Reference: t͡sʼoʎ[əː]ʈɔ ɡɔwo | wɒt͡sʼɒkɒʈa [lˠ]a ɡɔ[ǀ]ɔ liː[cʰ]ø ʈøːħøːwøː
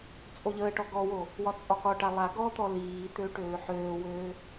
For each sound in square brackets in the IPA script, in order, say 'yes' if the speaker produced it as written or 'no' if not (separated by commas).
yes, yes, no, no